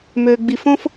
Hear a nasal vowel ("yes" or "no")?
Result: yes